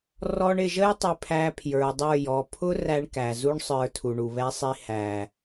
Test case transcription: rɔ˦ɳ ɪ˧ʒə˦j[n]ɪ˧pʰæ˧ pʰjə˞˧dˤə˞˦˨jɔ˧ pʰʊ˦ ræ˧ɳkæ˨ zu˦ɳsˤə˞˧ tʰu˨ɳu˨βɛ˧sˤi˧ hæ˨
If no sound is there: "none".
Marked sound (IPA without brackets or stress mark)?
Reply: tˤ